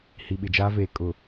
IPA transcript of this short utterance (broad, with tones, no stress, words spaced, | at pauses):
hi˨ɓɪ˨d͡ʒaː˦veː˨ kʼʊ˨